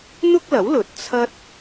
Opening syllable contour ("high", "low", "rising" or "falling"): high